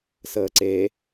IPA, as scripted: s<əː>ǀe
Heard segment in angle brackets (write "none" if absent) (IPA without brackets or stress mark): əː